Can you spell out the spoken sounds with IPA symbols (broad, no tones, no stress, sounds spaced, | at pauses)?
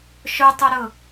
ʃ ʊ tˤ ʊ ɾ ʊ